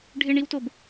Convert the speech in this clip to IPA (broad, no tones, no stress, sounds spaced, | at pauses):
ɖʱ ɪ ɳ i w t o b